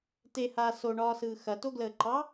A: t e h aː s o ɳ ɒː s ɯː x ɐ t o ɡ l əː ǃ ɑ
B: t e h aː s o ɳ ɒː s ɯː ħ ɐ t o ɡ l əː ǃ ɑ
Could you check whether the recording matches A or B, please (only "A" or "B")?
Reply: A